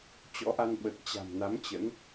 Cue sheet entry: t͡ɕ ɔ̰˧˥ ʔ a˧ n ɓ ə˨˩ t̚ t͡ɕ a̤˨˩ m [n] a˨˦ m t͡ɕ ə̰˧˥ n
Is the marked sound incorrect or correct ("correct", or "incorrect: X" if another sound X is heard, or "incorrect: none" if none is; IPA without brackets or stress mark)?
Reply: correct